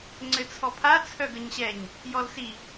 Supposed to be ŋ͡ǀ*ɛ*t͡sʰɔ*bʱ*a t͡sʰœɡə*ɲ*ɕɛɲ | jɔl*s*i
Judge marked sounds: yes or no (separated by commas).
no, no, yes, yes